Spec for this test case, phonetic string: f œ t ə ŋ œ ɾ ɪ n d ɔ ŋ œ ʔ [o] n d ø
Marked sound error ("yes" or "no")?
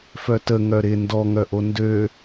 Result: no